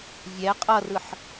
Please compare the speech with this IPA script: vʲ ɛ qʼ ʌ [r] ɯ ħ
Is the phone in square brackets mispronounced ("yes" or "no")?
no